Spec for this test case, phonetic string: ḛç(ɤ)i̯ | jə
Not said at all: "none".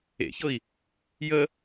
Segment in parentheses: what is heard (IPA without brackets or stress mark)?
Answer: ɤ